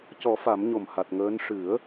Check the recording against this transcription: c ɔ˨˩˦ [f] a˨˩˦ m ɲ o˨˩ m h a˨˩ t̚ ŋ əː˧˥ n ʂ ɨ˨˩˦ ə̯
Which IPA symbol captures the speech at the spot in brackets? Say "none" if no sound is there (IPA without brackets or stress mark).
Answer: f